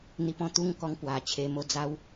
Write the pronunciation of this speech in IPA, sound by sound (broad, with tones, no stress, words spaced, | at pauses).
n̪i˧pɔ̃˥˧ t̪u˥˧ŋ kɔ˦ŋ pwa˨˩t͡ɕʰe˧ mo˧ d͡za˦w